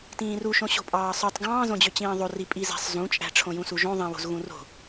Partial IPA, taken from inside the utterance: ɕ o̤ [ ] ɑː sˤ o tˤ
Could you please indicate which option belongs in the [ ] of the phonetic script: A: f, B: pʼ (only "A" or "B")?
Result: B